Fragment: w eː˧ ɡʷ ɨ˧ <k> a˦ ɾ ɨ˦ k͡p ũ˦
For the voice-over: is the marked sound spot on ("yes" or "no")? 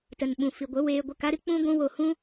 yes